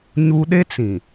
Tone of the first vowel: high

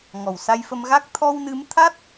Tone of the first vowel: low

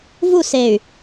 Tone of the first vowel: falling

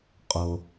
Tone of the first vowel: low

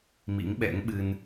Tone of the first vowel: rising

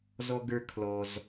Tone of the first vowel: high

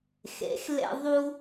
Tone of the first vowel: rising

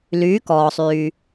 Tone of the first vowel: rising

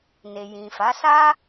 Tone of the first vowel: low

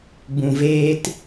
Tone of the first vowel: low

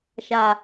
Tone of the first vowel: low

